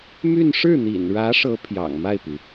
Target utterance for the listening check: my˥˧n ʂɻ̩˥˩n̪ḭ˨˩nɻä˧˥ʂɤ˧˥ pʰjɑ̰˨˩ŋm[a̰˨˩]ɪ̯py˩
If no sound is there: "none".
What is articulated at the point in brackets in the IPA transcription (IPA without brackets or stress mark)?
a˥˩